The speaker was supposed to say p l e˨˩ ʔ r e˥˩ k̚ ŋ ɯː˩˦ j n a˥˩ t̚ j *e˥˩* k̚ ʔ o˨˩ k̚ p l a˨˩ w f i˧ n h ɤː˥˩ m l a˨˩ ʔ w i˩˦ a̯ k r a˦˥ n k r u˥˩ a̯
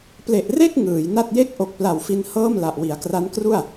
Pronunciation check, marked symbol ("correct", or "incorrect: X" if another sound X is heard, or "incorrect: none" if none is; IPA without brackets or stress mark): correct